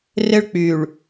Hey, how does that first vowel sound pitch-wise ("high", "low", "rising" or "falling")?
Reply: high